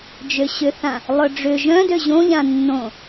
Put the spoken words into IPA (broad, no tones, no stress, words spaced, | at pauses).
d͡ʒøɕʏθã | lˠœɖ͡ʐʏ ʒœ̃dø ʑõʎã nːõ